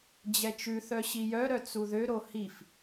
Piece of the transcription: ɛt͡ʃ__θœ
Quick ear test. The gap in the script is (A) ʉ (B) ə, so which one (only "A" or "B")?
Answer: A